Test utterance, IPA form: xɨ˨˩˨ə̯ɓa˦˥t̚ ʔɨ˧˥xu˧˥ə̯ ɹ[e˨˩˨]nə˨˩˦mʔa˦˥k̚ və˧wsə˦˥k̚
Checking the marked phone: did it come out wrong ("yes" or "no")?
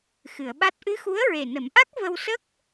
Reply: yes